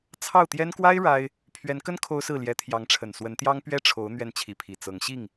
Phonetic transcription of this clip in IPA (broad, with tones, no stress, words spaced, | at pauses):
t͡sʰɑ˥˩ʊ̯t̪jɛ˥n kwa˥ɪ̯ ɻa˥ɪ̯ | pʰɥɛ˧˥nkə˥n kʰo˥ʊ̯sɹ̩˥˩ ljɛ˧˥t̪ʰjɑ˧˥ŋʈ͡ʂʰə˨˩n swə˧˥nt̪jɑ˥ŋ pɥɛ˥ʈ͡ʂʰo˧˥ʊ̯ n̪ɥɛ˥˩nt͡ɕʰi˧˥pʰi˨˩ t͡sɤ˧˥ŋɕi˥˩ŋ